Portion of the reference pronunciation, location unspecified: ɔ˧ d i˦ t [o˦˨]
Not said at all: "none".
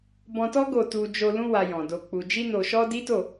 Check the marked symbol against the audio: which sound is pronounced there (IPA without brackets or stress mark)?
o˦˨